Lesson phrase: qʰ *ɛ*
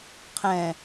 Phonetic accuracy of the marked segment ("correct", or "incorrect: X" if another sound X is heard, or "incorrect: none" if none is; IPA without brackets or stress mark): incorrect: ɛ̃